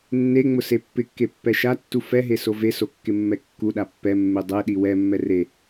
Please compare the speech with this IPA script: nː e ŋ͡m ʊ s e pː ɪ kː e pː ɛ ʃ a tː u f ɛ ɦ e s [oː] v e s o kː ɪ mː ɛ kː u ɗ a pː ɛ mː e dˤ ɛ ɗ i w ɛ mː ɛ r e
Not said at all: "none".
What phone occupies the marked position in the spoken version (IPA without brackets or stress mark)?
o